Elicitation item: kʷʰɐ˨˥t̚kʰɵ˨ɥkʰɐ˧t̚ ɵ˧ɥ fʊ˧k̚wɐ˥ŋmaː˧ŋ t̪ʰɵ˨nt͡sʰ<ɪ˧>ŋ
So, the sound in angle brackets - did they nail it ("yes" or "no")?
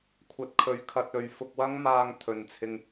yes